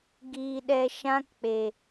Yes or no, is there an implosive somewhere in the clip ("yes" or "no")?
yes